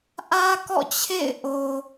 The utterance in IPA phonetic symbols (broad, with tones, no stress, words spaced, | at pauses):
ʔä˦kɔ̰˦˨t͡ɕʰḛ˦˨ɪ̯ʔo˨